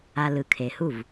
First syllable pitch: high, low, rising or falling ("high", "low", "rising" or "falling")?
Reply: low